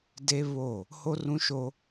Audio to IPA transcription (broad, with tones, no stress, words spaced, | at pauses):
de˦ βo˦˨ | ho˦rũ˦ʃo˦